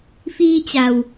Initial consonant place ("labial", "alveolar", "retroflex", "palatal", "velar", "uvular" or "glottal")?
labial